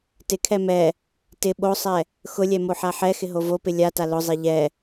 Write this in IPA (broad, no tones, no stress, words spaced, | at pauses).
tɪkʰɛ mɛ | tɪ ɓosˤɛ | xʊlʲɛ moħaħɛxɪ ɦovopɪ lʲata lʊzˤe ʎɛ